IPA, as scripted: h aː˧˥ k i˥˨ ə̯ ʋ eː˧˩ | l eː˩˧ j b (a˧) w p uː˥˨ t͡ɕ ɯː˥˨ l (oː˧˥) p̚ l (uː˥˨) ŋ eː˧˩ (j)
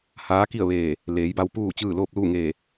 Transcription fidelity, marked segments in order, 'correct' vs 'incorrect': correct, incorrect: oː˥˨, correct, incorrect: none

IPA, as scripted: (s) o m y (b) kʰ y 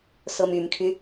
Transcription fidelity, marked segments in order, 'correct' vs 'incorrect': correct, incorrect: m

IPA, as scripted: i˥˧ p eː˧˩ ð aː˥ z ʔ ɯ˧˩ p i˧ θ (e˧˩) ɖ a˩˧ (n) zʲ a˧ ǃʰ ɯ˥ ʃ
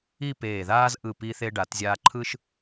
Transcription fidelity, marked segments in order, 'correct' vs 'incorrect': incorrect: e˧, incorrect: t

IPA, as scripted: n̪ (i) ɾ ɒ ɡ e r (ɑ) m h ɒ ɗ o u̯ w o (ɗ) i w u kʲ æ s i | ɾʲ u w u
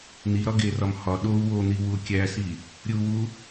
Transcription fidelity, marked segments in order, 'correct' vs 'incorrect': correct, incorrect: ɒ, incorrect: n̪

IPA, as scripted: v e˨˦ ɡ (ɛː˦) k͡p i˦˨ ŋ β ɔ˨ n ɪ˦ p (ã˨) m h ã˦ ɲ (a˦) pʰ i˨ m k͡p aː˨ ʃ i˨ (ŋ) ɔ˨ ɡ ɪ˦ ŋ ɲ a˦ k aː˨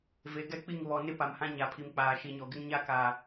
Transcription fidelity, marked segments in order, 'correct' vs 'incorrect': incorrect: ɛ˦, incorrect: a˨, incorrect: a˨, incorrect: ɲ

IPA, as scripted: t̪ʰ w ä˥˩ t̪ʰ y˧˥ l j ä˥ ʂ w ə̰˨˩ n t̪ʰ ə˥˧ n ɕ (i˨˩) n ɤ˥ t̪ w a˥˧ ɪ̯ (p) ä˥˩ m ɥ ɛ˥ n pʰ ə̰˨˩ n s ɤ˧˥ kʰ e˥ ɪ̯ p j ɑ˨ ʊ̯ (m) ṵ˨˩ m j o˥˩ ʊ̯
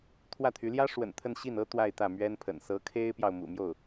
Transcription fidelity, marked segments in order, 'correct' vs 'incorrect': incorrect: i˥˩, incorrect: t̪, correct

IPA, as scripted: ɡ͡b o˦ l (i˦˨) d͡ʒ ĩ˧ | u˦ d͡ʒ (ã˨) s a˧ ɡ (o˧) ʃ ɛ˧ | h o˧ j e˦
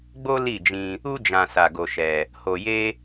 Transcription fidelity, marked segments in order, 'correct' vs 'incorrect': correct, incorrect: ã˧, correct

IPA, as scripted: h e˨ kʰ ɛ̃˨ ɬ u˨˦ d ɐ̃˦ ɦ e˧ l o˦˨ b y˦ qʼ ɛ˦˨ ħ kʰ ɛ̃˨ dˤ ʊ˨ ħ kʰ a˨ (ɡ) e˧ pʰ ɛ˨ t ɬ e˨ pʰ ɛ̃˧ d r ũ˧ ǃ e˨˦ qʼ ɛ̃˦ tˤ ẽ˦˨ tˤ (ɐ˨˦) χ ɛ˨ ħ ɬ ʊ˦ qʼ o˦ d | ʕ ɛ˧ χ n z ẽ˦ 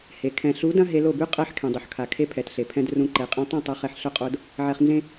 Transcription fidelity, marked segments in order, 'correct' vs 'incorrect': incorrect: kʰ, correct

